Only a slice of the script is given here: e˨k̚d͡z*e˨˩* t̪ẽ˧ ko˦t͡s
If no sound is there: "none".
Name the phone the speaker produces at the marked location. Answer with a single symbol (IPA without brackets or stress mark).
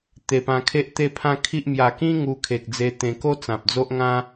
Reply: e˧